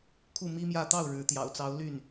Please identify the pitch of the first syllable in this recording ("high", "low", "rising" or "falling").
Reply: falling